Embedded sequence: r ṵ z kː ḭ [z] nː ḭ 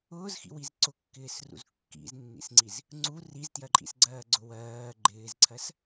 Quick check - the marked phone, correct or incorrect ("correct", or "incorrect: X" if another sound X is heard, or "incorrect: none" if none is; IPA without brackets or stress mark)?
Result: correct